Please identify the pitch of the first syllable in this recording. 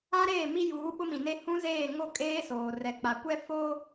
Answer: high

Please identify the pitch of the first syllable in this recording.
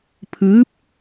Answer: rising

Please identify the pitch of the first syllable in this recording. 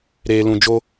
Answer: low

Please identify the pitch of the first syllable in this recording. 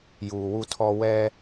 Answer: low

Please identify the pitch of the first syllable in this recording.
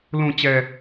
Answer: low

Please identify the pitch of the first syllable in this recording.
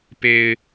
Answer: low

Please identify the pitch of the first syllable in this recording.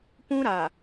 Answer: high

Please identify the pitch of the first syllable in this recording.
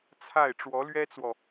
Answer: falling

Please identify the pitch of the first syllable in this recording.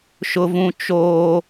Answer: low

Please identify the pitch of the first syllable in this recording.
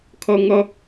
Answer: high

